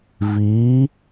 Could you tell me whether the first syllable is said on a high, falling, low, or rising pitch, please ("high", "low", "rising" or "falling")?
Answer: rising